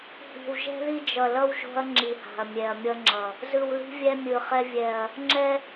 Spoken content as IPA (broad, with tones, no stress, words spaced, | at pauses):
hi̤˨wʒɛ̤˦ði˦ d͡ʒʌ˨lʌ˦w ʒo̤˦ɐ̯ ŋ͡ǁi˨ha̤˨ɐ̯ mʲɛ˨ɐ̯mʲʌ˦ŋ͡ǁʌ˨ | zɯ˨wli̤˦vʲɛ˦ mʲɯ˨χɛ˦ vʲɛ˨ɐ̯ | ŋ͡ǁɛ˦